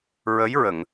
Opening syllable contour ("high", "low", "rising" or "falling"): rising